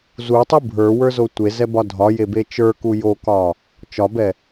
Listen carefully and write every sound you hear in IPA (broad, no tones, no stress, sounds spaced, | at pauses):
z u tˤ u bʱ ə˞ w ə˞ z o tʷ e z ɛ b ɒ dʱ ɒ j e b e t͡ʃ ə˞ k u j o k ɒ | t͡ʃ ɒ b ɛ